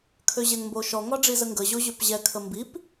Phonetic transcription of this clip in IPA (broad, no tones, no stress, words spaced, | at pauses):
kʰøʑɛŋmboʃɔ ŋɒɖ͡ʐizəŋɡə ʑoʑøpʑɛ kʰəmbip